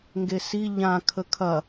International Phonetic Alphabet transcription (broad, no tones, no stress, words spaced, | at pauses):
ŋɡesi ʎã kʰəkʰɐ